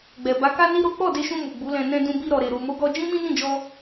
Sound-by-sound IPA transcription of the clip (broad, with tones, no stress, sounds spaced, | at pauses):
ɡ͡b ɛ˨ b a˨˦ k a˦ n i˦ ɾ o˦ k͡p ɔ˦˨ d e˧ ʃ ũ˧ m u˨ ɡ͡b u˨˦ l ɛ̃˧ n ɛ̃˧ d ũ˧ b i˧ ɾ ɔ˨ ɾ e˨ ɾ u˨ m o˨˦ ɡ ɔ˧ d͡ʒ ĩ˦ m ĩ˦ n ĩ˦˨ d͡ʒ ɔ˧